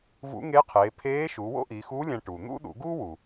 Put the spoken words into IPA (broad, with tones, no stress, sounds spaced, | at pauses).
v ṵ˧˥ ŋ e˧˥ qʰ eː˩˧ pʰ eː˧˥ ʃ u˩˧ w o̰˥ ʔ i˩˧ x u˧˥ lʲ æ̃˧ ʈ uː˩ n̪ ṵ˥ ɗ ṵ˩˧ ɡ uː˥ w u˩